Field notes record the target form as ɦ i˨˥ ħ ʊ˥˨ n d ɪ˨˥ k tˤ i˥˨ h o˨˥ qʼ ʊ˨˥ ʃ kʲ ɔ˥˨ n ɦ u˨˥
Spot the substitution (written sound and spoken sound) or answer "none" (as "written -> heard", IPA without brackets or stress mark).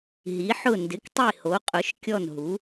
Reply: none